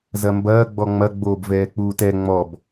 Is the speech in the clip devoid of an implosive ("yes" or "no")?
yes